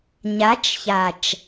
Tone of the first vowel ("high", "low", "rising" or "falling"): rising